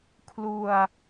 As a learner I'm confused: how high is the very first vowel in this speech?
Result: high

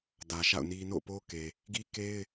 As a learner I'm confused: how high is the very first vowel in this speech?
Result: low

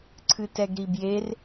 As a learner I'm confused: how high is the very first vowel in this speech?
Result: high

